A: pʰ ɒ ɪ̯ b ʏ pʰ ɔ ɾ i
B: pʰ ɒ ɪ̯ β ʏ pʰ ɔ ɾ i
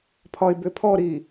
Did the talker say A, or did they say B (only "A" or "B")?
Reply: A